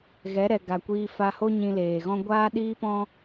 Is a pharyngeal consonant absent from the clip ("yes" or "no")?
yes